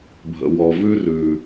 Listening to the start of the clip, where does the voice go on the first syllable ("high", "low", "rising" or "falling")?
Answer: low